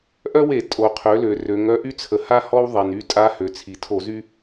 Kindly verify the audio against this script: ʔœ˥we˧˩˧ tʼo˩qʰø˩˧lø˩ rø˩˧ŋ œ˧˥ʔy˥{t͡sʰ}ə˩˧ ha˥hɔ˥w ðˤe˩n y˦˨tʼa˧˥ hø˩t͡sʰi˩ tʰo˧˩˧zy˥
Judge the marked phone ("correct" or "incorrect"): correct